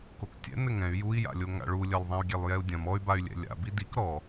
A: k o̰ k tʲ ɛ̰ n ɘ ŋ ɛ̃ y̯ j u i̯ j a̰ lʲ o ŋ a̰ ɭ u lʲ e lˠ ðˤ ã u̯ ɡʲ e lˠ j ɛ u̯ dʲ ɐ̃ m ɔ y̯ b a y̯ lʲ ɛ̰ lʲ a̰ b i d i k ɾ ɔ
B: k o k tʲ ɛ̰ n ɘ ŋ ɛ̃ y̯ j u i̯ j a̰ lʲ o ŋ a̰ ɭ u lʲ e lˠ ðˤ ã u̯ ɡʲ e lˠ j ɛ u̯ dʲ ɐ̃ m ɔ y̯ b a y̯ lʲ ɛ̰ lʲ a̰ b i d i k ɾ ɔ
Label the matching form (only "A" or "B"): B